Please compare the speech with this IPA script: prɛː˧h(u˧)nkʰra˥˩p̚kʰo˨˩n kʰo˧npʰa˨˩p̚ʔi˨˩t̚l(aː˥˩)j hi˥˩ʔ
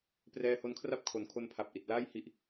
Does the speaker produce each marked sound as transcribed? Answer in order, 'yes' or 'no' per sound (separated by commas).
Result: no, yes